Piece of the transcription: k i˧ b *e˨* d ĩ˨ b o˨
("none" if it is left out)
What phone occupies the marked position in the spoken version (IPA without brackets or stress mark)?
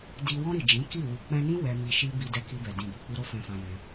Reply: ɛ˨